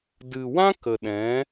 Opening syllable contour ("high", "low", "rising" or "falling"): low